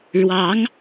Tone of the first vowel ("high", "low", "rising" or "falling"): rising